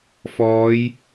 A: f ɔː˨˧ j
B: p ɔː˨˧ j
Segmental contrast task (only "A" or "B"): A